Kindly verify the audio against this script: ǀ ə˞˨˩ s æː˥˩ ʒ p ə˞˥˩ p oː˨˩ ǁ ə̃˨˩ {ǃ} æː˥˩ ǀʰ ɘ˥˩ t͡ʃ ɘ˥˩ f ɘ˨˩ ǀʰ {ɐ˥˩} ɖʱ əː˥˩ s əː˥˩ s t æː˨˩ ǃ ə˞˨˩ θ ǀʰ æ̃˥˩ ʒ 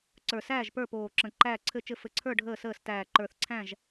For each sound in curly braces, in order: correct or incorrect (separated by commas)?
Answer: correct, incorrect